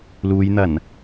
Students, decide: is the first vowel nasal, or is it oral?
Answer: oral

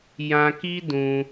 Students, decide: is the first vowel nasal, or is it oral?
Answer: nasal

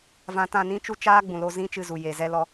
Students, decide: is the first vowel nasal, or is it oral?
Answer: nasal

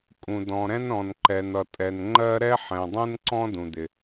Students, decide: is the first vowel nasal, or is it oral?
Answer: nasal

